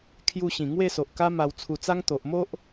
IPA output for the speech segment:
kʰ j u˧ ɕ ĩ˨˩ ŋ w e˥˧ s o˨ ʔ k a˦ m a˧ w t͡sʰ u˧ t͡s a˦ ŋ t̪ o˨ ʔ m o˦ ʔ

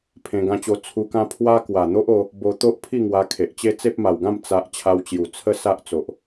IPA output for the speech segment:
pʰ ẽ˧ ɡ ã˧ t͡ɕ o˧ t͡sʰ u˧ k ã˦ pʰ w a˦ k w a˨˩ n̪ o˦ ʔ o˧ | b o˧ t̪ o˦ ʔ pʰ i˥˧ ŋ w a˧ kʰ e˨ ʔ t͡ɕ e˦ t͡s e˦ p̚ m a˨˩ w ɡ ã˥˧ m t͡s a˨ ʔ t͡ɕʰ a˧ w t͡ɕ j u˨˩ t͡sʰ ə˦ s a˦ ʔ t͡s o˨ ʔ

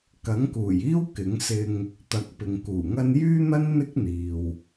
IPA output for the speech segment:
k ɐ˨˥ ŋ k uː˨˩ j iː˥ w k ɪ˨˥ ŋ s ɪ˧ ŋ | t̪ ɐ˨˥ k̚ p ɪ˨ ŋ k uː˨˩ ŋ ɐ˥ n j yː˥ n̪ ɐ˥ n n̪ ɪ˥ k̚ n̪ iː˨ w

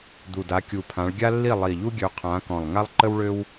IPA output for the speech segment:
d̪ u˨˩ d a˨˦ kʲ u˨˩ pʰ ã˨˦ ɭ ɡʲ a˥ lː i˥˨ lˠ i˨˩ ʎ u˥ ɡʲ ø˨˦ qʰ ãː˨˦ k ɔ̃˨˩ lˠ ŋ a˥ lˠ ǃ ə˥ w ɭ ø˥ w

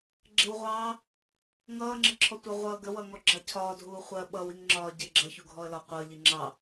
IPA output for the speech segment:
ɡ͡ǁ ɪ w ʁʷ ɑː | ŋ ʌː ŋ͡ǁ ə ǁʰ ɔ tʷ ɑ ʁʷ ʌː ɡ ə w ʌ ŋ ɔ ɡ͡ǁ ɑ cʰ ɒː dʱ uː χʷ ɜ ɓ ʌ w i ŋ ŋ͡ǁ ɒː ɟ ɪ ɡ͡ǁ ʌ ç u ɡʱ ɔ ə̯ l ɒ qʷ ʌ ʎ i ŋ͡ǁ ɑ

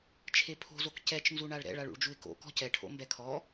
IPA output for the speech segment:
t͡ʃʰ e pʰ o̤ z o k c ɛ t͡ʃ n z u ɳ a ɭ ɾ ɛ̰ ɭ a ɭ ṵ ɭ d͡ʒ u ɪ̯ k o̰ k ɔ̤ c ɛ ʈʰ o̰ m b ɛ kʰ ɔ

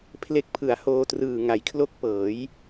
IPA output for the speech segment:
pʰ l e˦˥ k̚ pʰ ɯ˩˦ a̯ h oː˧ t r ɯː˨˩ ŋ a˩˦ j kʰ l o˦˥ k̚ p ɤː˩˦ j

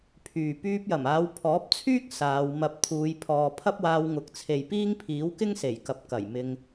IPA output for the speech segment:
pʰ yː˨ p yː˧ p̚ j ɐ˨˩ m aː˨˧ w pʰ ɔː˨˥ p̚ t͡sʰ yː˥ k̚ s aː˨˧ w m ɐ˧ p̚ t̪ʰ uː˨˧ j pʰ ɔː˨ pʰ ɐ˥ p̚ w aː˧ w ŋ ʊ˨˥ k̚ t͡sʰ e˨ j p iː˥ ŋ pʰ iː˨˥ w k ɪ˥ ŋ s e˨˩ j k ɐ˨ p̚ k ɐ˨˩ j m ɪ˧ ŋ

